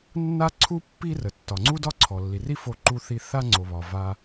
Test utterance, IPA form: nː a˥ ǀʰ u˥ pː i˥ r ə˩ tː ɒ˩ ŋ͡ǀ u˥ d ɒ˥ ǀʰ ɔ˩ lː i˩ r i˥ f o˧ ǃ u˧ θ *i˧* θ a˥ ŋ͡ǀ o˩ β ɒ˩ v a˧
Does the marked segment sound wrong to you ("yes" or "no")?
no